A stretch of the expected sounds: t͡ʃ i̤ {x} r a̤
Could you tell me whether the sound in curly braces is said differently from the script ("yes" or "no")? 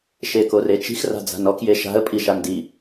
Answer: no